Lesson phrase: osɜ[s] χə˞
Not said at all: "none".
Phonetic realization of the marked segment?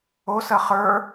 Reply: none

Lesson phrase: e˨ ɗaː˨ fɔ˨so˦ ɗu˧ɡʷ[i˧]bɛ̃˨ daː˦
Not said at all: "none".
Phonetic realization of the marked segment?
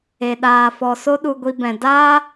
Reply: i˧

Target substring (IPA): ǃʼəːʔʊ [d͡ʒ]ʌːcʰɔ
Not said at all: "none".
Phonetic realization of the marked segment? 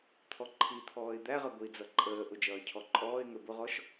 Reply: d͡ʒ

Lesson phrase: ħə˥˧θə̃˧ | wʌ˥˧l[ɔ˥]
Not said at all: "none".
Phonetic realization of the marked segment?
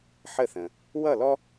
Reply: ɔ˥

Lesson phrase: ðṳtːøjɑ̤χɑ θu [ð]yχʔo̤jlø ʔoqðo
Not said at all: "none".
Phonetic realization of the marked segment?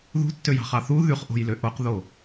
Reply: ð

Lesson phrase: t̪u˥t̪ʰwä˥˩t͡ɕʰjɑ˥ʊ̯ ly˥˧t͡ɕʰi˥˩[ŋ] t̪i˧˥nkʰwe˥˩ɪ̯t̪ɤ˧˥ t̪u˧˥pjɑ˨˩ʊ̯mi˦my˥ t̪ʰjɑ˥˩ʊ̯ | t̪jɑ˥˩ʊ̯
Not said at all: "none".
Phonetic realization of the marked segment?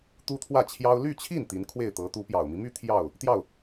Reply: n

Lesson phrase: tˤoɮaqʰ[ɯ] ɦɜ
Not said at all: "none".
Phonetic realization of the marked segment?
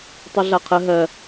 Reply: ə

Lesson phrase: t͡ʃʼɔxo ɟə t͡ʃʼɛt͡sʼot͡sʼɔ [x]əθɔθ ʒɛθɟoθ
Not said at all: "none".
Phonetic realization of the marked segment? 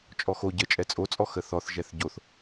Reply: x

